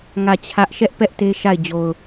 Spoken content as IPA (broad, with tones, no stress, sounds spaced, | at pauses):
ŋ ä˦˨ t͡ɕʰ ä˦ ʔ ʃ ɛ˦ ʔ p ɛ˦ ʔ t e˦ ʃ a˦˨ ɪ̯ d͡ʑ o˨ ʊ̯